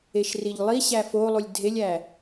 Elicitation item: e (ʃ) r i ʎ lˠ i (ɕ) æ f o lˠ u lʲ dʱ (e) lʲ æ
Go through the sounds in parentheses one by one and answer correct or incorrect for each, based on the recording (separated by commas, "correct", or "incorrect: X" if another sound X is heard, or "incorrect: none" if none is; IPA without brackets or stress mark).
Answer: correct, correct, correct